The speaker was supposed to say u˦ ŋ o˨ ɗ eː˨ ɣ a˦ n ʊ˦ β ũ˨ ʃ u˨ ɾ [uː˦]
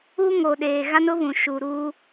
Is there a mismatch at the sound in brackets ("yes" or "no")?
no